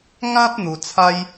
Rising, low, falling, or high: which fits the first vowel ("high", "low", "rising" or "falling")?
high